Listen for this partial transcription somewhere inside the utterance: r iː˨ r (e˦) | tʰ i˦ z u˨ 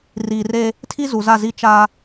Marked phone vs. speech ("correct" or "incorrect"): correct